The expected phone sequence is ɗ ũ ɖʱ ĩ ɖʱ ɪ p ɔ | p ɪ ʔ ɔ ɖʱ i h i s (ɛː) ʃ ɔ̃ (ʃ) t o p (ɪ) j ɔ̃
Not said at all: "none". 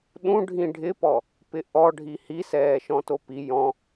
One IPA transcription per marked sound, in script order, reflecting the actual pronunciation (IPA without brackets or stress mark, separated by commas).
ɛː, none, i